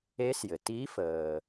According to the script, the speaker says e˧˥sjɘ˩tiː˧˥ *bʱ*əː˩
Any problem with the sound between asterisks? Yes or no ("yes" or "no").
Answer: yes